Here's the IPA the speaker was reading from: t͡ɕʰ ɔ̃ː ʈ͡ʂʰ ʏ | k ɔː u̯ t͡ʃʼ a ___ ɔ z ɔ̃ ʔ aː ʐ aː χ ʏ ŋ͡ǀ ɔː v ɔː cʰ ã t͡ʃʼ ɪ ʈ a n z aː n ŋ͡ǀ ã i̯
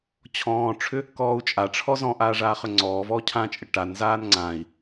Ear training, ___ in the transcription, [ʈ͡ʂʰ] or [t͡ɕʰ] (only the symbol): ʈ͡ʂʰ